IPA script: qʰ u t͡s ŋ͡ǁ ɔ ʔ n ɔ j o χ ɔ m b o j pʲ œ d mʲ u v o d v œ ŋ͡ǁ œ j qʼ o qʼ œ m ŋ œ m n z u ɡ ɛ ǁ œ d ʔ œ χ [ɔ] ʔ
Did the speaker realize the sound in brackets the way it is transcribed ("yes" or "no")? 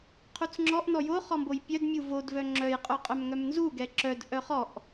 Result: yes